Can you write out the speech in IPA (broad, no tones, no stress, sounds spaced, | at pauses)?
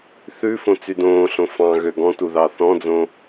θ ʉ f õ t͡s y d õː ɬ õ f ɑ̃ ɣ ø ɡ ɔ̃ t u ð ɑ θ ɔ̃ d͡z õ